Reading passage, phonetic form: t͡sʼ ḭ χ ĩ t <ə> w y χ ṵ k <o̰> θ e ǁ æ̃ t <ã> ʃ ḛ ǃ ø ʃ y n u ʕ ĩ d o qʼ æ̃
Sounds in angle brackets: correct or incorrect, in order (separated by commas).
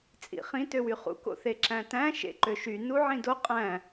incorrect, correct, incorrect